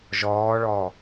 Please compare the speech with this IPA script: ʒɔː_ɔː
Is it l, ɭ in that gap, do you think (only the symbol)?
ɭ